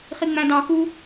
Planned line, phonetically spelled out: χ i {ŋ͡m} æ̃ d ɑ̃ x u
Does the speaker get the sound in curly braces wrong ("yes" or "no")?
no